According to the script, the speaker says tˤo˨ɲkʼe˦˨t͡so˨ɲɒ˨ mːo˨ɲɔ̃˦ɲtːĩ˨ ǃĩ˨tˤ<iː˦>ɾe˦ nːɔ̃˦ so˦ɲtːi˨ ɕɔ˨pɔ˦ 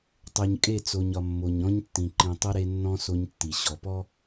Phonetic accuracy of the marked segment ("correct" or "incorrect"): incorrect